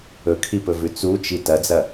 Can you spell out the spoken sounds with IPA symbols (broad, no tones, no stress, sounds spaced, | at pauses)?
ɵ kʰ i p ɵ v ʉ t͡s u t͡ʃ i t ɐ d͡z ɐ